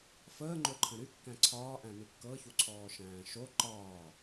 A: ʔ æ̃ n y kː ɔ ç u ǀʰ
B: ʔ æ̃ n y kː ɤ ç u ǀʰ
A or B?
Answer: B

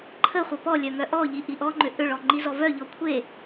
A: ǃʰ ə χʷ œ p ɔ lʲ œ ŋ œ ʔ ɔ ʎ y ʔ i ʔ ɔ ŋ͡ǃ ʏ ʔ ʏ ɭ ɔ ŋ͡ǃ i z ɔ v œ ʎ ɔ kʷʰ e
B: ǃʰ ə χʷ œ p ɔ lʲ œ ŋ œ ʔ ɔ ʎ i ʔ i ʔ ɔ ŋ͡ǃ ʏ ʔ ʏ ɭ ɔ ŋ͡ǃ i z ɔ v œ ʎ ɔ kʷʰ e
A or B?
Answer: B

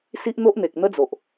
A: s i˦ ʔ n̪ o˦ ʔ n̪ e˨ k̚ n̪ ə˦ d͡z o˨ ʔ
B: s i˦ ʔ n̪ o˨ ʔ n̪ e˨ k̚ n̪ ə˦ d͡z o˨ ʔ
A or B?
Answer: A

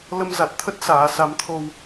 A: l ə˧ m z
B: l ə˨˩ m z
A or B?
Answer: A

